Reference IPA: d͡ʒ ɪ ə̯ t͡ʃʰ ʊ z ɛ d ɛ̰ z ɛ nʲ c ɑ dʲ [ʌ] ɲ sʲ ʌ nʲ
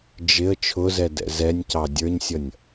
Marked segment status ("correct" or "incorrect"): incorrect